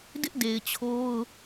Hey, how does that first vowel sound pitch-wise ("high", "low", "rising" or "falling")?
high